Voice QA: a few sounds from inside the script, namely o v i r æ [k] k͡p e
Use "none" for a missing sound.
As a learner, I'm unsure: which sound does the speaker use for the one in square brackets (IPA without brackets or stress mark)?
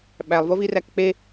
k